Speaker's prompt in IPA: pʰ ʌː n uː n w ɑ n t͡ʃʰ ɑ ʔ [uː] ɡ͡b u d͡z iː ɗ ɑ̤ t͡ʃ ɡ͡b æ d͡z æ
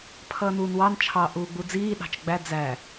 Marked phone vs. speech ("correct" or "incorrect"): correct